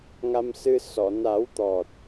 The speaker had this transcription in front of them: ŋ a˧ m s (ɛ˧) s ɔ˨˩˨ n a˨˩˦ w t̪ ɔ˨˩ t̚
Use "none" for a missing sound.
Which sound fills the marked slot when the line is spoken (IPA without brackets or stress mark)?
ɨ˧